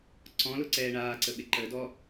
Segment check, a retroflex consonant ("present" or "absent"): present